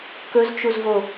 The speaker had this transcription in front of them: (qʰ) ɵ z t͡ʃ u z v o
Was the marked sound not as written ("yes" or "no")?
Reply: yes